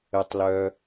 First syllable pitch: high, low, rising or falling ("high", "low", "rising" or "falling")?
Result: high